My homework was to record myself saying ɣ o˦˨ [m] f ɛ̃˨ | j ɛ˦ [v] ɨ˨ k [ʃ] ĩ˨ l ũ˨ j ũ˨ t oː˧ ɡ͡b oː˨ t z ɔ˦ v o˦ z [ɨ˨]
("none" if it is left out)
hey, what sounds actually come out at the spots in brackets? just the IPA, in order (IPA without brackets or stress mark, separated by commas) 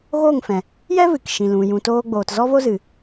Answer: ŋ, v, ʃ, ɨ˨